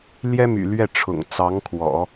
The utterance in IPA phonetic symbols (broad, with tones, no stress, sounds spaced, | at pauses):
l j ɛ˥ m y̰˨˩ l ɥ ɛ˥˩ ʈ͡ʂʰ ʊ̰˨˩ ŋ t͡s ɑ˧˥ ŋ kʰ w ɔ̰˨˩˦